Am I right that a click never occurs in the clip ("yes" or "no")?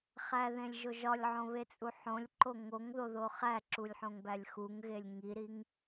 no